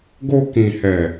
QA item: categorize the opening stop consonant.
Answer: plain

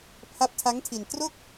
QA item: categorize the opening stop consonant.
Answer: aspirated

